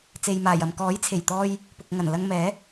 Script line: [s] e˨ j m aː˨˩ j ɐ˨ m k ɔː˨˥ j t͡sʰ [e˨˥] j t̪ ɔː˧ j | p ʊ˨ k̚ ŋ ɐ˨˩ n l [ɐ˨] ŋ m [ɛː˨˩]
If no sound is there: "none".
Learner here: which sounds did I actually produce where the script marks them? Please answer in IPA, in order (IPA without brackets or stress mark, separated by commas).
t͡s, e˨˩, ɐ˧, ɛː˨˥